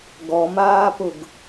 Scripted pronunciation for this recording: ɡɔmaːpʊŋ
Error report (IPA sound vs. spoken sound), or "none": ŋ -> ɡ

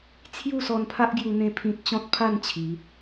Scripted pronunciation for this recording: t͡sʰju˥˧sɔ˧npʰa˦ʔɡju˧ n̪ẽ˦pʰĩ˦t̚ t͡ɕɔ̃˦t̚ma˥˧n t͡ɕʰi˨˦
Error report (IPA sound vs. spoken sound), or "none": m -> pʰ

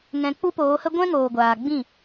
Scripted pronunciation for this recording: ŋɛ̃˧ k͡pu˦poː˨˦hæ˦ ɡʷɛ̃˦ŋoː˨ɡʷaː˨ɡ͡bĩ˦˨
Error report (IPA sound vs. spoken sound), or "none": æ˦ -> ə˦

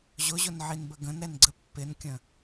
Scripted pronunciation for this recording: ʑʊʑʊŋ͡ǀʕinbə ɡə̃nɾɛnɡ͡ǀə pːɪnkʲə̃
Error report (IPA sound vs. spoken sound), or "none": ŋ͡ǀ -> n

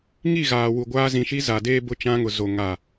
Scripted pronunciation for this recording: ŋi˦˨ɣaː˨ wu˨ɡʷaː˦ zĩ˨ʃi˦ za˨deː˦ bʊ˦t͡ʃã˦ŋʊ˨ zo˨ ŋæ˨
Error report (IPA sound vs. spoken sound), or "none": æ˨ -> a˨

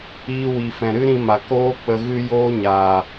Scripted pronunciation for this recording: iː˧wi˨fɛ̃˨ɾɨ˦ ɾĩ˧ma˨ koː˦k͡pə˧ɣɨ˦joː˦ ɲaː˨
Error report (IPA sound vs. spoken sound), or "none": none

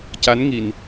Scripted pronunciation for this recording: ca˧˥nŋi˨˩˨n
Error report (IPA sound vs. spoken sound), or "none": none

